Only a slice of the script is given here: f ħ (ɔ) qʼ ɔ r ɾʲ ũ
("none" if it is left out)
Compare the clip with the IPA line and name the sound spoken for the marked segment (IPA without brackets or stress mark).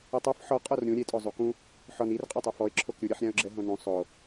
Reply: ɔ